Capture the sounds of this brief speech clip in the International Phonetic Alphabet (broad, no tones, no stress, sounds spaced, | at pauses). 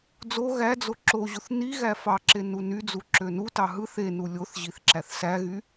d͡z o ɣ æ d͡z o ǁ o ʑ u θ n i ɣ æ f ɑ ǁ e n u n y d͡z u ǁ ø n u t ɑ ɦ ɯ θ e n u lʲ o θ ʑ i θ ǁ æ θ s æ ɣ y